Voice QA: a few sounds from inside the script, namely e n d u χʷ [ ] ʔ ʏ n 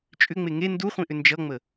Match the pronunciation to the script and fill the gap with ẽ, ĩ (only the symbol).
ĩ